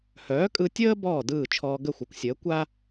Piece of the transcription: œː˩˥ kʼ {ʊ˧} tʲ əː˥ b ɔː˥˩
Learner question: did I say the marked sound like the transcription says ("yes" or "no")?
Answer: no